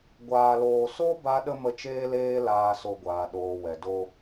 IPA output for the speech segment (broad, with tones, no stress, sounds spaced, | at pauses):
ɡʷ aː˧ l oː˧ s o˦ b a˦ ɗ ə˦ m ə˦ t͡ʃ eː˦ l eː˦ l aː˧ s o˧ ɡʷ aː˨ ɗ oː˨ w ɛ˨ d o˧